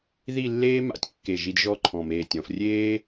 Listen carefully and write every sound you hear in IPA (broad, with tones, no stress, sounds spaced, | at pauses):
ð i˥˧ lː eː˥ m a̰˧˩ tʲ kː e˧˩ ʒ i˧ d ʒ ɔ˥˧ ǃʰ ɔ̃˧˩ m eː˧˩ tʲ ɔ̃˩˧ f rʲ eː˥